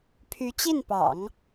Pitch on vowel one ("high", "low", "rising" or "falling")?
rising